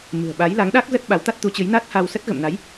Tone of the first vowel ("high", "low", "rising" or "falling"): low